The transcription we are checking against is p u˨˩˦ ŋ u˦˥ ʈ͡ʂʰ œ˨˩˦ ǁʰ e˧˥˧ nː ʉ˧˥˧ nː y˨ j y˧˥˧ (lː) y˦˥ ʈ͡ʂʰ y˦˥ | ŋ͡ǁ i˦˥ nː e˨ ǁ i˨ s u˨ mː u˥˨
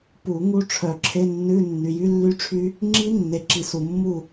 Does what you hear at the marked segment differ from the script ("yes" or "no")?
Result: no